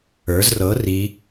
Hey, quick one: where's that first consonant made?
tongue tip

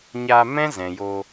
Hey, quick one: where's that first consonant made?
palate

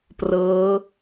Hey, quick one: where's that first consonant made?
lips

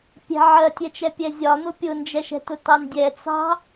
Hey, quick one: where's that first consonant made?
lips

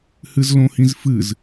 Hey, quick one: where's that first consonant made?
throat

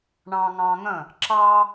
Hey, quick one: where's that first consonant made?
retroflex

